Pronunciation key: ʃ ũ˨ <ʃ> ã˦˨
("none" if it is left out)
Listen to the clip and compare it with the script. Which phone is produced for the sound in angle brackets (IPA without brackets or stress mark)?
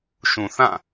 θ